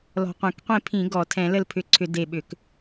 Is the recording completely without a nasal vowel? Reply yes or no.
no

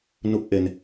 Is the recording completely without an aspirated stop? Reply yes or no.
yes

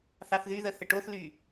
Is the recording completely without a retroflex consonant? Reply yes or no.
no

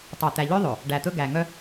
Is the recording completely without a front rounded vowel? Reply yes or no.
no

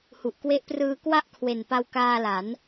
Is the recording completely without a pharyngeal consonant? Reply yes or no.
yes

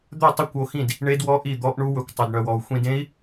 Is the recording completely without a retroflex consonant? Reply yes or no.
no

